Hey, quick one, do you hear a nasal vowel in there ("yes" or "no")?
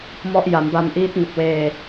no